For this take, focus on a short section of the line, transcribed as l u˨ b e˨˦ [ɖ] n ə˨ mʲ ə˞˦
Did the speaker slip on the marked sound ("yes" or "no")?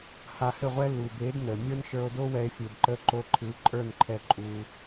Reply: yes